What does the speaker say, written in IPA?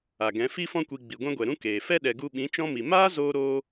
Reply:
a˨ ɡ ɛ̃˨˦ f i˧ f ɔ̃˧ kʷ i˨ ɡ͡b i˨ ɡʷ ɛ̃˦ ɡʷ ɛ˨ ɾ ũ˦ k eː˨ f ɛ˦ ɗ ɛ˨ ɡ u˧ ɓ ĩ˨˦ t͡ʃ ɔ̃˦ m i˨ m aː˦ z oː˧ ɾ oː˦

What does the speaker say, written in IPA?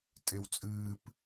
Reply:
tʼ e w t͡sʼ ɨː p

